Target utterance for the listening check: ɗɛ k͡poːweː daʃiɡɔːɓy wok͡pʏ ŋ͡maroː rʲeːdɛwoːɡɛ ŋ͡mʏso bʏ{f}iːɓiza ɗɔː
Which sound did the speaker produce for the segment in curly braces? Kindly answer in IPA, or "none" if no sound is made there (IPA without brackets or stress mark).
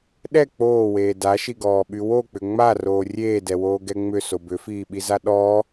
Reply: f